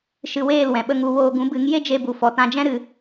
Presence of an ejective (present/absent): absent